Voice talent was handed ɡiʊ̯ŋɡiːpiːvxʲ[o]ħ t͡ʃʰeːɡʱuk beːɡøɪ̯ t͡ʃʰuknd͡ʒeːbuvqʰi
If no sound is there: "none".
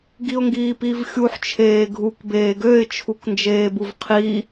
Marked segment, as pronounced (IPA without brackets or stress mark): u